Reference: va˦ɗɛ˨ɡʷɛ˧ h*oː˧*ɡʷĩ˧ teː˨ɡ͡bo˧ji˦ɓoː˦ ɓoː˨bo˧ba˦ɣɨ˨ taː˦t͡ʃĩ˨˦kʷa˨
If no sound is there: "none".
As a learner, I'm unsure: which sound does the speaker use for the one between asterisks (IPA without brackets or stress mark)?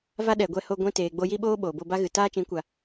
o˧